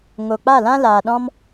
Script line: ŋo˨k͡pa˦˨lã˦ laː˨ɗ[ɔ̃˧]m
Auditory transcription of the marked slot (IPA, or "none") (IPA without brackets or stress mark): ɔ̃˦